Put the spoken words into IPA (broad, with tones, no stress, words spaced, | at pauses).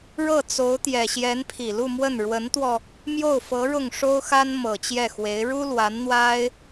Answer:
ɻɤ˥˩t͡so˧˥ʊ̯t̪jɛ˨˩ ɕjɛ˧˥npʰi˨˩lu˥˧mwə˥˩n ɻwə˧˥nt̪wɔ˧ | mjo˥˩ʊ̯fɤ˧˥ ɻʊ˥˩ŋʂo˥ʊ̯ xa˥nmɤ˨˩t͡ɕjɛ˥˩xwe˧˥ɪ̯ ɻu˥lwa˧˥nn̪wa˥ɪ̯